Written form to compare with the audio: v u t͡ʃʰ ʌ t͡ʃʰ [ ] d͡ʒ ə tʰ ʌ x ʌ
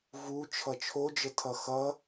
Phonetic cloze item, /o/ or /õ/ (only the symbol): o